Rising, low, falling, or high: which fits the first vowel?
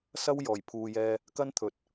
high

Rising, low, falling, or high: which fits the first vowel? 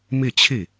falling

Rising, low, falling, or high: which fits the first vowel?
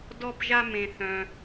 high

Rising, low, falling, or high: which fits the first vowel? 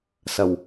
low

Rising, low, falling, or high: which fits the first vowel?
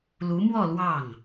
rising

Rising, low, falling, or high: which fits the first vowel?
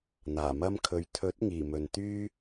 low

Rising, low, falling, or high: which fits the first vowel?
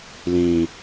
low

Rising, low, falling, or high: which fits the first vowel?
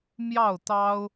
falling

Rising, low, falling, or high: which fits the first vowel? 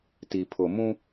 low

